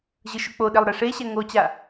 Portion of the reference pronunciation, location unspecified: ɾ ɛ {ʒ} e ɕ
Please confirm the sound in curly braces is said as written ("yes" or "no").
no